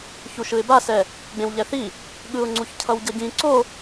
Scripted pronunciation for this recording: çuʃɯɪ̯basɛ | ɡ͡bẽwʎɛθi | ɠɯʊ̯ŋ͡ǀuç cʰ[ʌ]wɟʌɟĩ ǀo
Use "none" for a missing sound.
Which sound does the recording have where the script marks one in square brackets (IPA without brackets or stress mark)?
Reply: ʌ